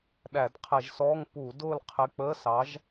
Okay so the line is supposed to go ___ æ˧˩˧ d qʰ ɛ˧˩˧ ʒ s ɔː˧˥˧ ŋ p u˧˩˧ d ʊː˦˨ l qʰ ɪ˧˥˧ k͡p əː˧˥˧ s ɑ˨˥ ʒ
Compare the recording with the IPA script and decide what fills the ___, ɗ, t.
ɗ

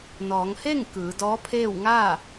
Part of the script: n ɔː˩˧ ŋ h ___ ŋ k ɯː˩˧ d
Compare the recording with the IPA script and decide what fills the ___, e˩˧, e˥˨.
e˥˨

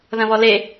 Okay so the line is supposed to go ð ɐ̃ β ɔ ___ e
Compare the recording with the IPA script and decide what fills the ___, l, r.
l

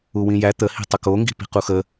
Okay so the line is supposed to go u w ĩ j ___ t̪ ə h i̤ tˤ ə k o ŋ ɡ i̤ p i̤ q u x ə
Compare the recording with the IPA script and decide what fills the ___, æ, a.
æ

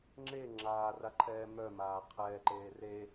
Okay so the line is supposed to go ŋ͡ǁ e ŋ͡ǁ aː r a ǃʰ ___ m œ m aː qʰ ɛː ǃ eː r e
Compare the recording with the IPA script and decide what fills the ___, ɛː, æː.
ɛː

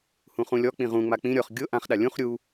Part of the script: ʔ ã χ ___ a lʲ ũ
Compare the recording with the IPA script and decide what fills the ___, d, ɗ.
ɗ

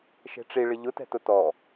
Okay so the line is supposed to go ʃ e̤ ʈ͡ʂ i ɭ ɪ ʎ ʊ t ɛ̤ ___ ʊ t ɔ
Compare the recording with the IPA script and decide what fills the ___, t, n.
t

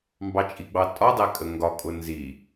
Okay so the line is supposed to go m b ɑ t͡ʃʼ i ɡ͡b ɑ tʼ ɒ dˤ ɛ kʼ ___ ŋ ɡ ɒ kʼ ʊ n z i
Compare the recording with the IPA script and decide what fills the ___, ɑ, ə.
ə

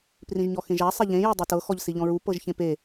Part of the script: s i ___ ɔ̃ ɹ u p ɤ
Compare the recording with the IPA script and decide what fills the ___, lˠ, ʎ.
ʎ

